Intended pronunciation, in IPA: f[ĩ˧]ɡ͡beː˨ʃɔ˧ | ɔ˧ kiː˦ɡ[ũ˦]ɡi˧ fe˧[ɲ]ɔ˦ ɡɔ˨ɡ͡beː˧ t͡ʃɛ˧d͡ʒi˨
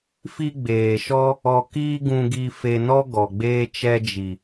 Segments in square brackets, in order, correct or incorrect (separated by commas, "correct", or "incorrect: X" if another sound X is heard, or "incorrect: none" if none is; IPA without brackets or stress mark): incorrect: i˧, incorrect: ũ˧, incorrect: n